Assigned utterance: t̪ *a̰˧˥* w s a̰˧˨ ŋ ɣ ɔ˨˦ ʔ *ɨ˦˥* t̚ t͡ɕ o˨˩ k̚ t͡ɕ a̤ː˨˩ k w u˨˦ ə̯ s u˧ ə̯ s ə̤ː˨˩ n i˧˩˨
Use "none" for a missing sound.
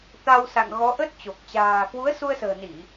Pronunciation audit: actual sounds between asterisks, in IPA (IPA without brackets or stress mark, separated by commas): a˧, ə˦˥